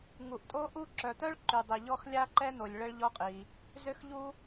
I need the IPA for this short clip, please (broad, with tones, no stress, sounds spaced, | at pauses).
ŋ u˩ ʔ tʼ o˥ ʔ u˥ ǁ œ˩ t̪ œ˥ ɭ ǃ y˩ dˤ i˩ ʎ ɔ˥ x lʲ a˥ ǃ ɛ˥ n̪ o˩ lʲ ɭ ə˥ ɭ ʎ ɔ˥ qʼ i˩ | z ø˥ x ʎ u˥